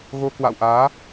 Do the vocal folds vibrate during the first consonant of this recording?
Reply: yes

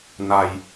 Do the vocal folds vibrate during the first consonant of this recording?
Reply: yes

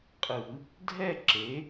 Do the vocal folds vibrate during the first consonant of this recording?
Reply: no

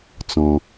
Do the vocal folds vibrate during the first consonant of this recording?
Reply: no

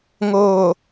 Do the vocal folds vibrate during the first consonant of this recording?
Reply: yes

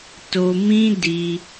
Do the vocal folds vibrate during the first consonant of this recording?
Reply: no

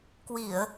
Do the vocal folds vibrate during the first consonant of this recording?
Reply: no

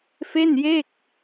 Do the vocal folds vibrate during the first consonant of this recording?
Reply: no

